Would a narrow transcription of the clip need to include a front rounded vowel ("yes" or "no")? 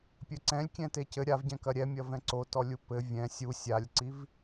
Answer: no